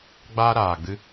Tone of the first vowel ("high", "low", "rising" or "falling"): high